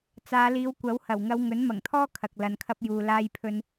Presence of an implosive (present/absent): absent